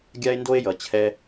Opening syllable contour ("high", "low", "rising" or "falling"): high